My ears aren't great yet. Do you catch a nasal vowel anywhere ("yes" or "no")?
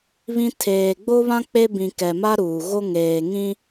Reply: yes